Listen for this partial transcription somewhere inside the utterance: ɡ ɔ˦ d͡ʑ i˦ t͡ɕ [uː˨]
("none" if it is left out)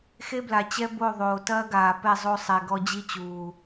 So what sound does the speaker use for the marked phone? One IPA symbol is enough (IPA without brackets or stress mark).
uː˨